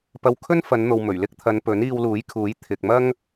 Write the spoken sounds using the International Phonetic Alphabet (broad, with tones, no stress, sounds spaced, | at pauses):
p ɐ˧ w kʰ ɵ˥ n f ɐ˨˧ n n̪ o˨ w m ɵ˨˩ ɥ l ɪ˥ k̚ t̪ʰ ɐ˨˧ n p ɵ˨˥ n iː˧ w l uː˨˥ j kʰ uː˨˥ j t̪ʰ ɪ˨ k̚ m ɐ˥ ŋ